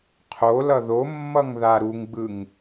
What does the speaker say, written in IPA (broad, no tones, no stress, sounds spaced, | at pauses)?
qʰ o l ʌ ð o mː ʌ ŋ ð a ɾ u ŋ ɡ͡b ɯ ŋ